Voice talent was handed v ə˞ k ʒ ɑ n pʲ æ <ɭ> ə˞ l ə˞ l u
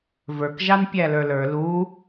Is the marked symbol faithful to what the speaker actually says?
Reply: no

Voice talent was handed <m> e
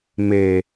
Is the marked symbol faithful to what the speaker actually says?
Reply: yes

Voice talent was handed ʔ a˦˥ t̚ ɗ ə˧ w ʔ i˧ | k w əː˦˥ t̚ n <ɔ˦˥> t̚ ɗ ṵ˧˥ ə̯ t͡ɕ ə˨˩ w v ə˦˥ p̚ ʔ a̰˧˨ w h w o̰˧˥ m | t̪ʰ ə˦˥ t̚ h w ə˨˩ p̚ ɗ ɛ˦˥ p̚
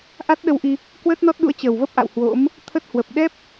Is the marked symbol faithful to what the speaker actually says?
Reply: yes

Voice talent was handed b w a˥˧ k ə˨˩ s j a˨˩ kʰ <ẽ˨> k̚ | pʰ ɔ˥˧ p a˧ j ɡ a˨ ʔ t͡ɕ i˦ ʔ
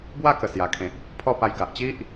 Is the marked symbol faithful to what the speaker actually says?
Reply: yes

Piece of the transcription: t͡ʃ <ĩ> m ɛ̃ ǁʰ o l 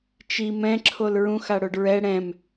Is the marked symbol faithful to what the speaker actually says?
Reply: no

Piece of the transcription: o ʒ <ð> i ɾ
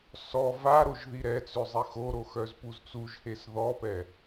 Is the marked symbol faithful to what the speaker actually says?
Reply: yes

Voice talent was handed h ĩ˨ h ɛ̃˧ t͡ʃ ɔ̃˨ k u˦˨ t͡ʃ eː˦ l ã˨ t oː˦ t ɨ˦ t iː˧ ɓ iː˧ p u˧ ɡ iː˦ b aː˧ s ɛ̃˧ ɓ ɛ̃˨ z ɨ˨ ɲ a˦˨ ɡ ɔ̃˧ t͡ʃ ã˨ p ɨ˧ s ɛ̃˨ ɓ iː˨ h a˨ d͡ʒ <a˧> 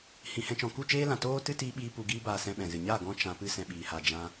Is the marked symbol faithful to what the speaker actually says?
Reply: no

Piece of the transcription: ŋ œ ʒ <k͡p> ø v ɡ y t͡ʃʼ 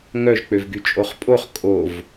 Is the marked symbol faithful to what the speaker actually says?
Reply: yes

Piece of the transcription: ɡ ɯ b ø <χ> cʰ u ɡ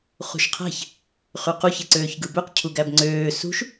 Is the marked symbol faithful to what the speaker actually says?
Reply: no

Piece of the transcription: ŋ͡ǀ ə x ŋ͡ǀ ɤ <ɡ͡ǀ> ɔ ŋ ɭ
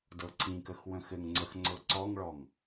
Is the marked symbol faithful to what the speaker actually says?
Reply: no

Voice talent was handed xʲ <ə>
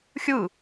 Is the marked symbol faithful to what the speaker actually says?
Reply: no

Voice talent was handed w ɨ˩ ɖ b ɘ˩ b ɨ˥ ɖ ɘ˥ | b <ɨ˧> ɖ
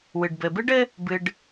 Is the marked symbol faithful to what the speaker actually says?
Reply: yes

